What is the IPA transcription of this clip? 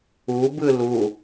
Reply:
u b ɯ l u

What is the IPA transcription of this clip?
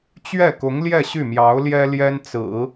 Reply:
t͡ɕ ɥ ɛ˥˩ k ʊ˧˥ ŋ l j ɛ˥˧ ɕ y˥˩ m j ɑ˧˥ ʊ̯ l j ɛ˥ l j ɛ˥ n t͡s ɹ̩˨˩˦

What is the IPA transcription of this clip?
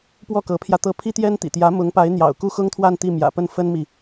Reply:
p w ɔ˥˩ k ɤ˧˥ pʰ j ä˧ t̪ ɤ˥˩ pʰ i˥ t̪ j ɛ˥ n t̪ ḭ˨˩ t̪ j ä˧˥ m ʊ˧˥ ŋ p a˧˥ ɪ̯ n̪ j ɑ̰˨˩ ʊ̯ k u˥˩ x ʊ˥ ŋ t̪ʰ w a˥˧ n t̪ i˥˩ m j ä̰˨˩ p ə˥˩ n f ə˥ n m i˨

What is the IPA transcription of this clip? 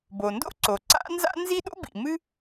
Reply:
b o˩ n d o̰˥ ǀ o˩ ǀ a̰˥ n z a̰˥ n z i˥ ɗ o̰˥ b ḭ˩ m ɨ˥

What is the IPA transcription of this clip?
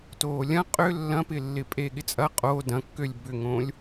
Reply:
t oː lʲ ɐ̃ qʼ ʏ lː ɐ̃ p ɪ lː ɪ pʼ e ɠ ɪ t͡sʼ ɐ qʼ o d ɐ̃ kː ø lʲ b ʏ ŋ õ lʲ

